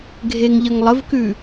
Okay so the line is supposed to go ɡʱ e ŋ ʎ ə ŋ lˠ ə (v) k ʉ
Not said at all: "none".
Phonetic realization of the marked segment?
v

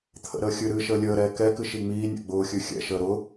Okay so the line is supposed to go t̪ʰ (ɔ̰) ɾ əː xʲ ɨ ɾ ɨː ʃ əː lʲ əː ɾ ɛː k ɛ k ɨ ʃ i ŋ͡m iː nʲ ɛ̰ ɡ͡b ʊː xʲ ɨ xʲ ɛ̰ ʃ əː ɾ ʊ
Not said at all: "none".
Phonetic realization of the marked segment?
ə̰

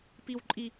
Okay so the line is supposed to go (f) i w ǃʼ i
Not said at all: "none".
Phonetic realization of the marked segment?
p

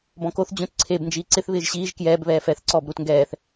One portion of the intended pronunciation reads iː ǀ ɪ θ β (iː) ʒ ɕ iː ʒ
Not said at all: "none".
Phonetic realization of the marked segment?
ɪː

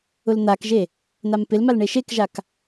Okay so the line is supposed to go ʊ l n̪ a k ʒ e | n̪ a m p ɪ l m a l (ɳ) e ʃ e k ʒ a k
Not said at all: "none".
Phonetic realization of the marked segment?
ɳ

